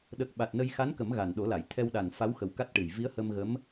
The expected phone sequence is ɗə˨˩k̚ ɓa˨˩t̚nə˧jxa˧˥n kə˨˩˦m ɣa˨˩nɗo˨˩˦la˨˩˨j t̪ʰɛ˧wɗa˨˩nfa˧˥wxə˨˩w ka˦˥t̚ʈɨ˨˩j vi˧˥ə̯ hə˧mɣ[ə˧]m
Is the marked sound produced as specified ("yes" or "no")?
no